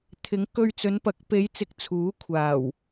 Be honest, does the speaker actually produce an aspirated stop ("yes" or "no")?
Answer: yes